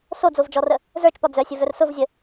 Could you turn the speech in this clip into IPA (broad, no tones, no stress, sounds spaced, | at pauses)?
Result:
s o d͡z o v d͡ʒ ɔ r ə | z ə˞ t͡ʃ p ɒ d͡z œ sʲ ə v œ r s ʊ v zʲ ə